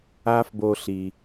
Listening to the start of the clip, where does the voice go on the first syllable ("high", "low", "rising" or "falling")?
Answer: high